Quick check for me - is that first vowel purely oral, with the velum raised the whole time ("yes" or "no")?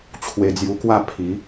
yes